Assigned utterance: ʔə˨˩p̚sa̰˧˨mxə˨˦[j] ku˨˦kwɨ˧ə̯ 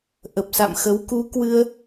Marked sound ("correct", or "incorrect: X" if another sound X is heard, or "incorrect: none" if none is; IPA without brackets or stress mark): incorrect: w